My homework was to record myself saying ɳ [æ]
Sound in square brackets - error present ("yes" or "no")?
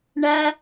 no